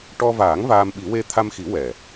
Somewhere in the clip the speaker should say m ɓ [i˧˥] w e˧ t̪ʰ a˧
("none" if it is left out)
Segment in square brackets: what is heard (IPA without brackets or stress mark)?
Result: i˨˩˦